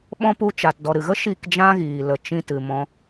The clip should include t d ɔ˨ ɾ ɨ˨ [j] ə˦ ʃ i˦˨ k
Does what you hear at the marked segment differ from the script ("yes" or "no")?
yes